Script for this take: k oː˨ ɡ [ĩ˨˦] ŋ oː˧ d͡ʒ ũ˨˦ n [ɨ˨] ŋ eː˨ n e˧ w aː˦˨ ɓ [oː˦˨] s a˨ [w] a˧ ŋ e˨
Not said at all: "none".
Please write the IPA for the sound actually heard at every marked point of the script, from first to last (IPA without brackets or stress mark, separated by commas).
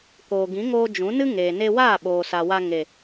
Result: ĩ˨˦, ɨ˦, oː˨, w